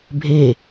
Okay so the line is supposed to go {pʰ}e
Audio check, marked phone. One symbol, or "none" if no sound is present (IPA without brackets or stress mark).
bʱ